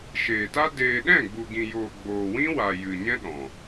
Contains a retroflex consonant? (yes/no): no